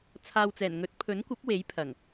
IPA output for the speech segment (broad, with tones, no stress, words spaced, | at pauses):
t͡sʰaː˨wt͡sɛː˨˩n ŋɵ˨˥t̚pʰɵ˨˥nkʷɐ˨˥p̚ we˨˥jpʰɐ˨˩ŋ